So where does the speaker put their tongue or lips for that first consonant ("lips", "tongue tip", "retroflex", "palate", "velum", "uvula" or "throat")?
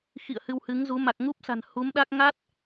velum